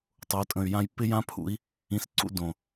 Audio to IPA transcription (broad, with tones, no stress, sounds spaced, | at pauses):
tˤ o˨˦ tʼ ə̃˨ y̯ j ã˦ j p ɪ˦ j ã˦ pʰ ṵ˨˦ i̯ | ĩ˧ s ǀ ṵ˦ d õ˨